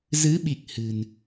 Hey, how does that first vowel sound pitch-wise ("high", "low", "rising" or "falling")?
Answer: rising